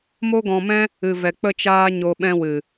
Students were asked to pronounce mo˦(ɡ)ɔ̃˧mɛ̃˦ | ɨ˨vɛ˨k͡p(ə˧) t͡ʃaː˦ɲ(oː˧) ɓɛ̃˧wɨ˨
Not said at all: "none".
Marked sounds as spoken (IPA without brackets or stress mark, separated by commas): ɡ, ə˧, o˧